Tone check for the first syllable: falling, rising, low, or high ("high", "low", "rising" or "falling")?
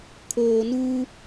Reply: low